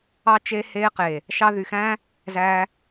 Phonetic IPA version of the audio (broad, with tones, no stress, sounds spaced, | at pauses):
ɑ˦ t͡ʃ e˦ h eː˧ q e˨ | ʃ ɑ˧ ð y˨ x æ̃ː˦ | z æ˧